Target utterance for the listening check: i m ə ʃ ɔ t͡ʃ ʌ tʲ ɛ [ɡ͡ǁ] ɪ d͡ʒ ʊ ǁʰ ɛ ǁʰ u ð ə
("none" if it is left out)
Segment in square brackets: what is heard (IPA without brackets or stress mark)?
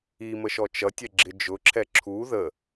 ɡ͡ǁ